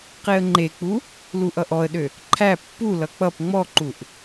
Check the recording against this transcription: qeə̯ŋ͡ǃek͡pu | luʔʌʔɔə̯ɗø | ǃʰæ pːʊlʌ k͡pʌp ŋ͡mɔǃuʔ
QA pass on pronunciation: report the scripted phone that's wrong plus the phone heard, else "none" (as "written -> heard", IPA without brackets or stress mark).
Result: ʊ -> u